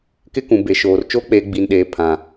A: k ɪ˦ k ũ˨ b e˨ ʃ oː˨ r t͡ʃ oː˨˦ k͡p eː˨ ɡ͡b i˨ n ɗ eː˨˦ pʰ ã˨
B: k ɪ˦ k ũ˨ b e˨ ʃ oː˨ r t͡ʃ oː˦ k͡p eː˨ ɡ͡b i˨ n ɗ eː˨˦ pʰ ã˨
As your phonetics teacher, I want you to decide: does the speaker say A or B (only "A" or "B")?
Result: B